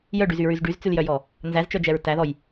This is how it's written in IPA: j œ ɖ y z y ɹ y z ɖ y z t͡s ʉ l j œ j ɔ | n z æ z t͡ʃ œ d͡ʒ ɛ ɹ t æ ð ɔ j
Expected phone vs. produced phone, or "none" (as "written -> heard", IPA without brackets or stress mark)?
none